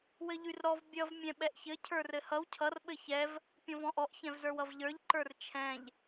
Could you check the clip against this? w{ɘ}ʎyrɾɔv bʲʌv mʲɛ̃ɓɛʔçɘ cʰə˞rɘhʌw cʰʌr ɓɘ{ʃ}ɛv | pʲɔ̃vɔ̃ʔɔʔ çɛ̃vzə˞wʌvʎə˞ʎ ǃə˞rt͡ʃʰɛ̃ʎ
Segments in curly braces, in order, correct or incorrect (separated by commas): correct, incorrect